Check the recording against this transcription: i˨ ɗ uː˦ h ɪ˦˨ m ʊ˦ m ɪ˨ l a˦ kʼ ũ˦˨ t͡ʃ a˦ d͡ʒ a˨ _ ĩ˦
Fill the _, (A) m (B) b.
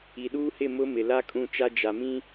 A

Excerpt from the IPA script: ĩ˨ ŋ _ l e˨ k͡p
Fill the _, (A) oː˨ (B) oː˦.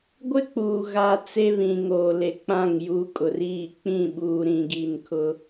A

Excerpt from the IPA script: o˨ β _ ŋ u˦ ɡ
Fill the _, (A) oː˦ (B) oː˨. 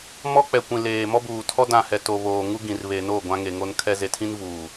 B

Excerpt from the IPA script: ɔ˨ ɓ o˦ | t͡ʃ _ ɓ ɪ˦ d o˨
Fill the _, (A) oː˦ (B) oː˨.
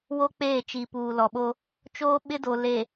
A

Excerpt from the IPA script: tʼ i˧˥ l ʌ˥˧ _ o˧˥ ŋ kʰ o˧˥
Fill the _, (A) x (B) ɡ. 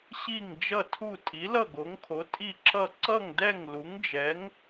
B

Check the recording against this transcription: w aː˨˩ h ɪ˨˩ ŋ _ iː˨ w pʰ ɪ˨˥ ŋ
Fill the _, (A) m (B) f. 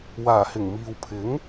A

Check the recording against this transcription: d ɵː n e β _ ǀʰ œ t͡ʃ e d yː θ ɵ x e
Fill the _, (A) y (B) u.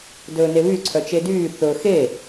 A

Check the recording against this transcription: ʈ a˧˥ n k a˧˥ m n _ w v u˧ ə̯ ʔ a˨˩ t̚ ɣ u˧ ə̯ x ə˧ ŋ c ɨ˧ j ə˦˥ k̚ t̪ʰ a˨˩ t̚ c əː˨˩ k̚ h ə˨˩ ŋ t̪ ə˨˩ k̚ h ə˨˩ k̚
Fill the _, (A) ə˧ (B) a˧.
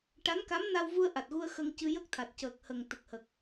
B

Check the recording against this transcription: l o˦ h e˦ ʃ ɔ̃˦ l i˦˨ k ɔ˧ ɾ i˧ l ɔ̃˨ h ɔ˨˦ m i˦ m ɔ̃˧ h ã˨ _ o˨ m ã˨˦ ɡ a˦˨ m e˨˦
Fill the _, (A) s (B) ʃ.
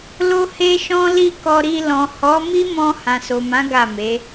A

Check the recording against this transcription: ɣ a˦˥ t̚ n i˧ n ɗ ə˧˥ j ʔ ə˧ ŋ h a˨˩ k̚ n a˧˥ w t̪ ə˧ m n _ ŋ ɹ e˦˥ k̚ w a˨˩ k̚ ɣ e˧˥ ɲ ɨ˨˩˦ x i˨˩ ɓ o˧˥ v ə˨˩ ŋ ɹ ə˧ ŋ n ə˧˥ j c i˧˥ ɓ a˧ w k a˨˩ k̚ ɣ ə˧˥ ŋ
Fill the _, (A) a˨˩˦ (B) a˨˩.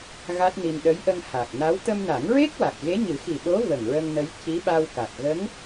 A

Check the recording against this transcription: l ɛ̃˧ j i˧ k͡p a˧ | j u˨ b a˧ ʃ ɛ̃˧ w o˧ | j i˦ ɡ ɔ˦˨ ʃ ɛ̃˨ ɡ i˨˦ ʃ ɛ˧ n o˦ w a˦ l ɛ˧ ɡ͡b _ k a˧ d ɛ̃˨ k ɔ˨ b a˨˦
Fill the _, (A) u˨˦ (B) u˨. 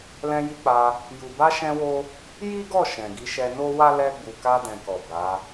B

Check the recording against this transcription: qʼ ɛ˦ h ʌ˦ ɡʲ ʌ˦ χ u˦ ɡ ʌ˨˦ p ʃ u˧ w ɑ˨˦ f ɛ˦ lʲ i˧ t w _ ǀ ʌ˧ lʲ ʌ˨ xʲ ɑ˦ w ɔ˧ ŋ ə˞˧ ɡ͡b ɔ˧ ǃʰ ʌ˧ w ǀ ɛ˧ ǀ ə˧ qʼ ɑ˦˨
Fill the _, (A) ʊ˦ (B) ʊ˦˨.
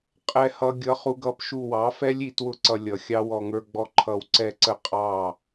B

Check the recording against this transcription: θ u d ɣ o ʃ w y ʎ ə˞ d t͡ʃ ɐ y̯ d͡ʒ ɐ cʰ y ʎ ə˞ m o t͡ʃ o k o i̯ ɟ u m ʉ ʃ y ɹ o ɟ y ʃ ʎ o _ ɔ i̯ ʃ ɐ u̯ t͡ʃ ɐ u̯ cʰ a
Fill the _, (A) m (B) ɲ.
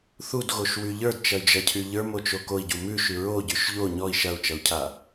B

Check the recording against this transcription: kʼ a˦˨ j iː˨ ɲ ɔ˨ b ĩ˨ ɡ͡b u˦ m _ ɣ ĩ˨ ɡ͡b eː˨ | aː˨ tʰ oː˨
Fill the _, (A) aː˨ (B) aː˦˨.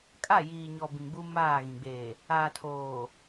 B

